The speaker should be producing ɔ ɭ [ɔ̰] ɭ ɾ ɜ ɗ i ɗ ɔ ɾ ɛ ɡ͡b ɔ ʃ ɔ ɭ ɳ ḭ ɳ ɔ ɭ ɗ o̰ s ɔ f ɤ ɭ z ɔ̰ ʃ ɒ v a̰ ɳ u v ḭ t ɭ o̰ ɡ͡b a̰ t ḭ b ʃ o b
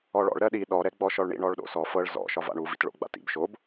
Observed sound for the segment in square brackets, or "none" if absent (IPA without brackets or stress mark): ɔ̰